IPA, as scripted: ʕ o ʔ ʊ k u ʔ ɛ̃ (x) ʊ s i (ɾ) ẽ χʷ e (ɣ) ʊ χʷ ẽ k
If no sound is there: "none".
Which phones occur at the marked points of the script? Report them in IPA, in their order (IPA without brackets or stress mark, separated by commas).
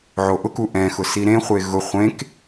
x, ɾ, ɣ